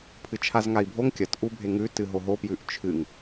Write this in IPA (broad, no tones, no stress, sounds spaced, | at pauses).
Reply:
pʰ ɨ t͡ʃʰ a z ŋ a i̯ bʱ o ŋ kʲ ɐ t ʔ u bʱ e ŋ ʉ t ɨ ɦ o ɦ o p j ʉ ʔ t͡ʃʰ ɨ ŋ